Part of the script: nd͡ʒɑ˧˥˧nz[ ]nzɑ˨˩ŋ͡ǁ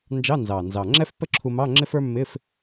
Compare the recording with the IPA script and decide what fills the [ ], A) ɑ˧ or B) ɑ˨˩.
B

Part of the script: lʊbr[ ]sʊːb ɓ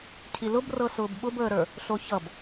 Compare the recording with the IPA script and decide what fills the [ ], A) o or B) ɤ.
B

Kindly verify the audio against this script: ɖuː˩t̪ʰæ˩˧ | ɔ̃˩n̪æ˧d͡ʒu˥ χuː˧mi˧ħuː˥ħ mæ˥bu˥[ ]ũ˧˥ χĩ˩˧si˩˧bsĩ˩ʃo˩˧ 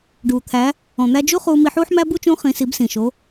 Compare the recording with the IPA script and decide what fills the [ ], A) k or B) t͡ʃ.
B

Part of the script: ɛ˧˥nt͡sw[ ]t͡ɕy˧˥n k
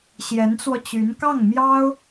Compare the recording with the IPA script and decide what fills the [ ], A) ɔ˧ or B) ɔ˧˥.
A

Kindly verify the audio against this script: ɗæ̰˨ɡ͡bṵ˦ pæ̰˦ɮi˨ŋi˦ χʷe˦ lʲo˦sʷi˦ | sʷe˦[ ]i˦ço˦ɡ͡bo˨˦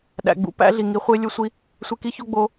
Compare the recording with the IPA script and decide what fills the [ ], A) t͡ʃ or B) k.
B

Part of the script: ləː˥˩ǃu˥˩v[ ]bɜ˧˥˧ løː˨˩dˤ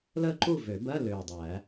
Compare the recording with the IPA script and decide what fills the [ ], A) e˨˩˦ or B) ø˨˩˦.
B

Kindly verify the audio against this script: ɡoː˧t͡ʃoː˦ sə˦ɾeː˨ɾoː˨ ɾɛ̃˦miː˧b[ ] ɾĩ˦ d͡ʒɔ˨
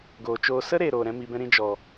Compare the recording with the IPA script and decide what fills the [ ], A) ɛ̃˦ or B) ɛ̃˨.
A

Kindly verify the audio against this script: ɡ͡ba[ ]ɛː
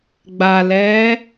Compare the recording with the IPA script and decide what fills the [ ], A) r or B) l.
B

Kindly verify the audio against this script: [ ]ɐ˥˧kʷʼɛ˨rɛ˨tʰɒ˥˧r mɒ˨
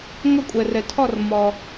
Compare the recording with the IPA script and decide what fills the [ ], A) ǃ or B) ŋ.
B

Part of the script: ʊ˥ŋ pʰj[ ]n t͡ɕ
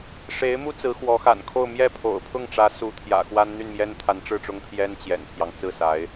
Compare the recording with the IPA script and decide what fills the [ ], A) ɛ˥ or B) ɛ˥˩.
A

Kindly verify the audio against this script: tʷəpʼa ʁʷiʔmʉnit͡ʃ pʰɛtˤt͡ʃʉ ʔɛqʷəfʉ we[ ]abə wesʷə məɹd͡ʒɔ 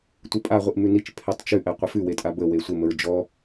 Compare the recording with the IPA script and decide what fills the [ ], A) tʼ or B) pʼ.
A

